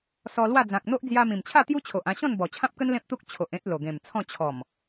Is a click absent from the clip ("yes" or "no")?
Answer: yes